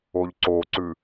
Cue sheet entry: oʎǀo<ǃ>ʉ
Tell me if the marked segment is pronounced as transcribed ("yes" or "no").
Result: no